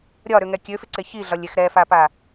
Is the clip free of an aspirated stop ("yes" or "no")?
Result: yes